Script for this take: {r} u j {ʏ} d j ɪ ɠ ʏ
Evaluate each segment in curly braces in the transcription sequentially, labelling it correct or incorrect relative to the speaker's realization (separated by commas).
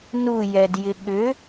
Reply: incorrect, incorrect